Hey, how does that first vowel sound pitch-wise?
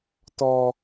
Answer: high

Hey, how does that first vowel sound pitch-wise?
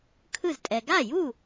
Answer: falling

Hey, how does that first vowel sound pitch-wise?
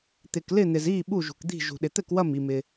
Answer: low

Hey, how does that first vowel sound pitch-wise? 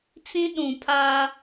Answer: high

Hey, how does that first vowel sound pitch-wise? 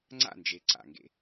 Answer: falling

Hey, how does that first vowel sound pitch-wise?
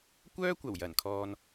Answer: high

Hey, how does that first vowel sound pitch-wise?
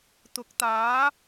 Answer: rising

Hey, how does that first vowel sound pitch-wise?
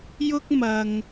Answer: high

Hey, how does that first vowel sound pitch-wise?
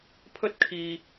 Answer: high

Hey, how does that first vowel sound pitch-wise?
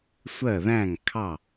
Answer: falling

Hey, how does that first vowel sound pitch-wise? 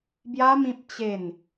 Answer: high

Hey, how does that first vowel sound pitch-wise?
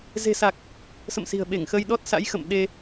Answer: low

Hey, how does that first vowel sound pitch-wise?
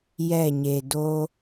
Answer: falling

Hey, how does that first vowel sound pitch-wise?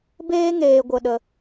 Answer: high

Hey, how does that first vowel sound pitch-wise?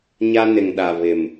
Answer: high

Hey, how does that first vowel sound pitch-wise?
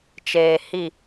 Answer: low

